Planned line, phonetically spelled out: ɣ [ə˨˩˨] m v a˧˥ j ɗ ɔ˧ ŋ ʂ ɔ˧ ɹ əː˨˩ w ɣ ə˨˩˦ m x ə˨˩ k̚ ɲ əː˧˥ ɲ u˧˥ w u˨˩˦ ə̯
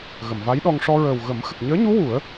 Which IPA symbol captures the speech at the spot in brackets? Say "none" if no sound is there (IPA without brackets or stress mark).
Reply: ə˨˩˨